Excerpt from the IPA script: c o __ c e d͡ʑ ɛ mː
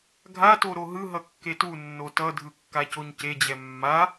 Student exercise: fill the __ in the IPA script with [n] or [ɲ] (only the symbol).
ɲ